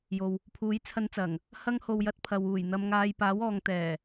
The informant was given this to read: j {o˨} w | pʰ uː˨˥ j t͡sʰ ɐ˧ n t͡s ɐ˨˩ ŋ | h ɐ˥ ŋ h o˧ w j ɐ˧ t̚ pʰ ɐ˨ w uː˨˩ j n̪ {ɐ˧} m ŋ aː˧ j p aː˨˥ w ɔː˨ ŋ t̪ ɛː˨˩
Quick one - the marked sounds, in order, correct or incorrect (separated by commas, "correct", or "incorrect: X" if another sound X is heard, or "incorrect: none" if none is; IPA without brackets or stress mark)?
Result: correct, correct